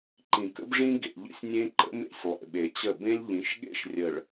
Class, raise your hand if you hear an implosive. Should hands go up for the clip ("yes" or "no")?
yes